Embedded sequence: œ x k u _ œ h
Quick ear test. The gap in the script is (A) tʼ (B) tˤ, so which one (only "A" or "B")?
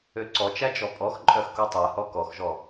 B